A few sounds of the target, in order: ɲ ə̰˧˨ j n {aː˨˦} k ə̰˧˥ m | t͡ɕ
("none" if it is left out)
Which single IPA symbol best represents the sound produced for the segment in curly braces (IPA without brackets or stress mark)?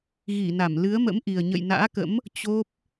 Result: a̰ː˧˥